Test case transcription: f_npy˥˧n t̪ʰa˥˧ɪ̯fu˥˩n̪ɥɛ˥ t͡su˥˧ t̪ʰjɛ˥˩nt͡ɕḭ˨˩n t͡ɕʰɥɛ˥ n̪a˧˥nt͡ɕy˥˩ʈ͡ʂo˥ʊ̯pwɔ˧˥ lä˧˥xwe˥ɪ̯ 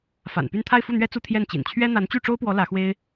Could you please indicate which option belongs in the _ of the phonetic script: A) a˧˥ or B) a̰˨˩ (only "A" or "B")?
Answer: B